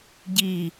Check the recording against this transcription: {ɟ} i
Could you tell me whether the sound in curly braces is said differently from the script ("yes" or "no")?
no